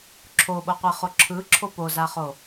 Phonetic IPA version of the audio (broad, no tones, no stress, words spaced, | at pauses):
ǁʰoɓoqʷeχo ǁʰɯǁʰo pozaχo